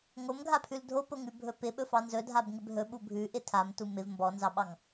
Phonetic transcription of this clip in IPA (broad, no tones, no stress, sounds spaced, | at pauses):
ŋ o m ɡʱ a pʰ ʉ l dʱ o p o ŋ ʉ bʱ ɵ p ɪ ɓ ɵ f ɑ n z ɵ dʱ a b ŋ ɪ b ɦ ɵ ɓ u bʱ ʉ ʔ ɪ tʰ a m t u m ɪ v m b ɔ n z ɑ ɓ ɑ ŋ